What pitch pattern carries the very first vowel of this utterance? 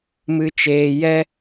low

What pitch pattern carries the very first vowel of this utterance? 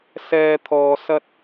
low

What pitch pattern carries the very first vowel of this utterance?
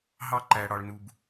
high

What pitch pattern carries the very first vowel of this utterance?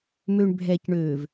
low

